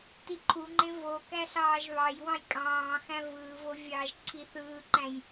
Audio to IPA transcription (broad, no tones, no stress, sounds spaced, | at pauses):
t i ǃʰ u ŋ͡ǃ ẽ v o k æ ɬ ɑː ʒ β ɑ j w ɑ̃ j kʼ ɑ̃ː x æ̃ v ɯː v o vʲ ɑː ʒ ǀʰ i θ ɯː ǃ æ̃ j